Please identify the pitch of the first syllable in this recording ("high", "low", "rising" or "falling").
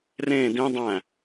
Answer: falling